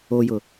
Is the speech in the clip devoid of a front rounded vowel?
yes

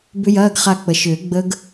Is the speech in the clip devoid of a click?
yes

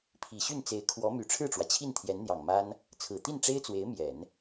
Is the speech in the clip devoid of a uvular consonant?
yes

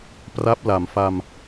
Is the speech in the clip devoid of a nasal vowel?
yes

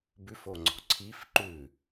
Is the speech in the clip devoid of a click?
no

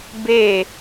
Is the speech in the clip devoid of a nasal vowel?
yes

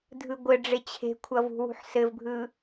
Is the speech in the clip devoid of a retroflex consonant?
no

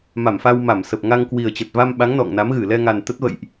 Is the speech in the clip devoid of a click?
yes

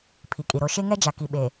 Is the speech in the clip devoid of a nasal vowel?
yes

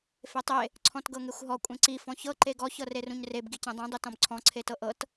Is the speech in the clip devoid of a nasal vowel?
no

